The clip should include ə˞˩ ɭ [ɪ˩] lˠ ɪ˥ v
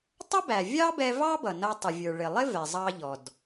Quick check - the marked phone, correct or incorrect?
correct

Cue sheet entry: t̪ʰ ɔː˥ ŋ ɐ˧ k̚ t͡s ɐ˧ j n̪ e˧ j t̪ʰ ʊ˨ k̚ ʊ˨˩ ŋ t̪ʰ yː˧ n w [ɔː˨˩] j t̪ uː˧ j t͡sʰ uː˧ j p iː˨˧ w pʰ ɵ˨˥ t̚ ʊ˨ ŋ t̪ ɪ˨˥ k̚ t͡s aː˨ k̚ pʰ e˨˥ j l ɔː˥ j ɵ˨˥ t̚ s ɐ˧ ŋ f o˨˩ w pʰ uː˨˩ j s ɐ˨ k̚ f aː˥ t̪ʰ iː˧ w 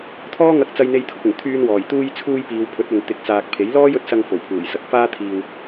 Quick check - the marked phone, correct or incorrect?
correct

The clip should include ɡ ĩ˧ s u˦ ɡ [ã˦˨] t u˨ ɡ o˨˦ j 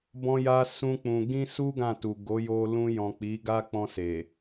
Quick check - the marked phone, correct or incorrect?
correct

